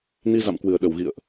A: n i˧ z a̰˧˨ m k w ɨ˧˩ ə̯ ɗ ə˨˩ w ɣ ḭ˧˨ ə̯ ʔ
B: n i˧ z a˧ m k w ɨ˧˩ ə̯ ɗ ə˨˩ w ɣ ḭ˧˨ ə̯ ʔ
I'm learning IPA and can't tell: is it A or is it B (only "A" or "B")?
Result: A